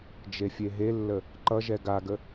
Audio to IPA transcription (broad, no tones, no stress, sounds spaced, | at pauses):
d͡ʒ e fʲ e ɦ e lː ə | ǃ ʌ ʒ ɛ ɡ a ɡ ə